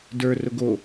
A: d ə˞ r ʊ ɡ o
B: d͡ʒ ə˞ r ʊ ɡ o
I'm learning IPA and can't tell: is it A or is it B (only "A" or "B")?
A